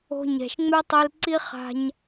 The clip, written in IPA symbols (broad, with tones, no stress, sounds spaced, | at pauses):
o̤˧ ɲ ɛ̤˨ ʃ ŋ͡m ɛ˦ tˤ i˧ l ǀ i˦ χ a̤˧ ɲ